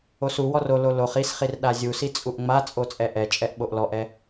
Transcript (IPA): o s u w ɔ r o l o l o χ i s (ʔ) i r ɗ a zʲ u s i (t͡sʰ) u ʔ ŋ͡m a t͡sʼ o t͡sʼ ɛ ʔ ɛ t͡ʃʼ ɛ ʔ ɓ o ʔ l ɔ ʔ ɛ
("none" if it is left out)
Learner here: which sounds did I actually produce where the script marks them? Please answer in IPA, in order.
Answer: χ, t͡sʼ

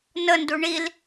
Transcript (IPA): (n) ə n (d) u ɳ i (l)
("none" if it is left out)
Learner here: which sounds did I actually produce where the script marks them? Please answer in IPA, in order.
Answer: n, d, l

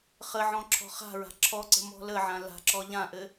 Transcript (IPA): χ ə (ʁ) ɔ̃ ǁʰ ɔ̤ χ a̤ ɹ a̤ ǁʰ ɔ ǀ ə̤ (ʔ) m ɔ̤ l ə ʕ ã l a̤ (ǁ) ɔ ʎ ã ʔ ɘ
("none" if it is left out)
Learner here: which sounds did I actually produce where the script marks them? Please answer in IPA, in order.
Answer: ʕ, none, ǁ

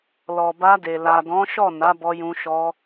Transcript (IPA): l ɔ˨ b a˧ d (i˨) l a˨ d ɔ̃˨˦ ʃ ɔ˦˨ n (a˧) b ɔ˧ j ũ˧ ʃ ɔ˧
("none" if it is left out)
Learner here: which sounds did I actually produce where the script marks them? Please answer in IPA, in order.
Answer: e˨, a˨˦

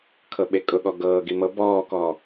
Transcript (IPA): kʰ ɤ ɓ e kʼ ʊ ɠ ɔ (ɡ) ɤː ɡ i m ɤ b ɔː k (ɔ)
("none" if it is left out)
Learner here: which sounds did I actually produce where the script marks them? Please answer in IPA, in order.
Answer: ɡ, ɔː

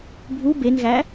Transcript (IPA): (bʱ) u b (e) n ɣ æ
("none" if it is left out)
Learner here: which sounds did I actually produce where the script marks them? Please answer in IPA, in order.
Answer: bʱ, e

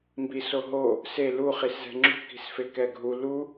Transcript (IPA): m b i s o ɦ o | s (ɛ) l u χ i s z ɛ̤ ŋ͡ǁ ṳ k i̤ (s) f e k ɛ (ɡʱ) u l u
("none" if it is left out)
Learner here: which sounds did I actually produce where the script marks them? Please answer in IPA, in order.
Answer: e, s, ɡʱ

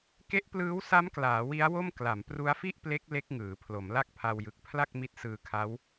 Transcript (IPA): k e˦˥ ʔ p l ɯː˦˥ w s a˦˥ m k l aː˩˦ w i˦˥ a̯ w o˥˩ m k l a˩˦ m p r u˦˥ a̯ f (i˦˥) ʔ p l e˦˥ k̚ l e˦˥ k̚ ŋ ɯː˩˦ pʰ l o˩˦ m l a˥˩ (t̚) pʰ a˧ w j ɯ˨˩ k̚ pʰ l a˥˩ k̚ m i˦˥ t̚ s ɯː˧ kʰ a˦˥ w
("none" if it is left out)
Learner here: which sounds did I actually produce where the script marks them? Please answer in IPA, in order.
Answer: i˥˩, k̚

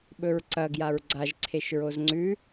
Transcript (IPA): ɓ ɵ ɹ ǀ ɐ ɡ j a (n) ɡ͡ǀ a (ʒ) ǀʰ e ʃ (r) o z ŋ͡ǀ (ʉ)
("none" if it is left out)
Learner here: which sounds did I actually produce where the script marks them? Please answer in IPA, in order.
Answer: ɹ, ʒ, ɹ, ʉ

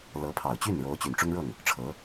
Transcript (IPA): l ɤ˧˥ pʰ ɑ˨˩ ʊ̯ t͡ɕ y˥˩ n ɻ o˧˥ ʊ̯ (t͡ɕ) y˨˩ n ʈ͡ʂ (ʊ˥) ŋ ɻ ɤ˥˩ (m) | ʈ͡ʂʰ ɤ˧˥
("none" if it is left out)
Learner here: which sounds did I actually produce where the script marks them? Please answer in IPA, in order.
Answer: t͡ɕ, ʊ˥, ŋ

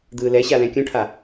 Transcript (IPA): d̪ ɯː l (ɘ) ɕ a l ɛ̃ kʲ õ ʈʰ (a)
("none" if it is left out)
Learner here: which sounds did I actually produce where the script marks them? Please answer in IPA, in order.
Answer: ɛ, a

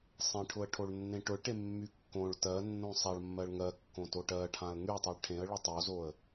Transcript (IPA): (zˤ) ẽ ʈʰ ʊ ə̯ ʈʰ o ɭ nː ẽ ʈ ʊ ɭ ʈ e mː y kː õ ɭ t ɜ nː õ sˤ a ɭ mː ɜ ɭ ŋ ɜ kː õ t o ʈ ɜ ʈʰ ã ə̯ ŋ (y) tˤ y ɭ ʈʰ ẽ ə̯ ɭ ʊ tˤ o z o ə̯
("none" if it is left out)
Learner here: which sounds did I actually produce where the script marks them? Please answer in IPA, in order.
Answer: sˤ, y

